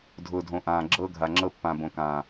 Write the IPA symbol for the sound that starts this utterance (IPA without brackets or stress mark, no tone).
dʱ